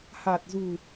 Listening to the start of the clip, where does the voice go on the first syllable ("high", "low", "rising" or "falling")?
low